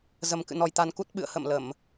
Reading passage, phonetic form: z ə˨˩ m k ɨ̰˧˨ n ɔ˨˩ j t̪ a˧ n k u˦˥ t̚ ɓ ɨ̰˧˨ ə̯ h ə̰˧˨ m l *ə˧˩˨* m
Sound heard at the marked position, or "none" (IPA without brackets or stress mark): ə˧˩˨